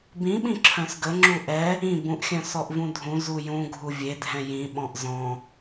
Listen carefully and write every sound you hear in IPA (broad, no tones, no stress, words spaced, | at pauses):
bĩɓĩ ǁʰœ̃sɡə ŋ͡ǁuʔɛ | ĩ bũʔxʲœ̃ sɔʔvũdʱũ zujũ ɡʱuvʲedʱɛ̃ jĩ ɓɔ̃ʔzɔ̃